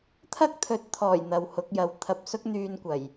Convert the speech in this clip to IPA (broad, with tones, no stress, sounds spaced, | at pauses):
t̪ʰ ɐ˥ k̚ t̪ʰ ɵ˨˥ t̚ t̪ʰ ɔː˨˩ j n̪ ɐ˨ w h ʊ˨˥ k̚ j ɐ˨˧ w t̪ʰ ɐ˨ p̚ s ʊ˥ k̚ n̪ yː˧ n kʷ ɐ˨˩ j